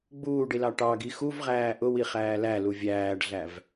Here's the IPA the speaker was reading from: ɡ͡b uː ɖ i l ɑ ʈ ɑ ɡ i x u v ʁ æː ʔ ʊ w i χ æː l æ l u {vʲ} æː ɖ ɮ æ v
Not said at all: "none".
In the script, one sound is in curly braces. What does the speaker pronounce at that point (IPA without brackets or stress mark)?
vʲ